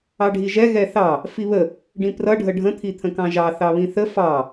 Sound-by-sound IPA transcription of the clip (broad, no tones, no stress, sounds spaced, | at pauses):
ɑ ɖʱ i ʒ ɛ ɣ ɛ θ ɑ | f i β ə | ɖ ĩ p r ʌ ɖʱ ə ɖʱ ə̃ t̪ʰ i t̪ʰ ə̃ k ɑ̃ ʒ ɑ θ ɑ β ĩ θ ə f ɑ